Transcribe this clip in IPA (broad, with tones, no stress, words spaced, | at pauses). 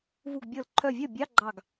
vu˧˩ɡbʲɤ˧˩l ǃʰœ˧˩vʲœ˥˩bʲɑ˧˥˧ ɡ͡ǃɑ˧˩ɡ